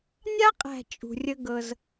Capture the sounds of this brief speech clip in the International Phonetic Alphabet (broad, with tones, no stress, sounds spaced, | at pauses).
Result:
nʲ a˦ qʼ æ̤˨ t͡ʃʼ ṳ˨ rʲ ə˦ ɡ ɤ˦ z